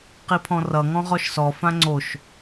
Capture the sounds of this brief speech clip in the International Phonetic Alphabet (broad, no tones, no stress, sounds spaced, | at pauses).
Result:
q i pʰ ɔ̃ r ʌ ŋ ɔ̃ ʁ ɔ ʃ s ɔ f ã ŋ͡ǀ o ʃ